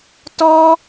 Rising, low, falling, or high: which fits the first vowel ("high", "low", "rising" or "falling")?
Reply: high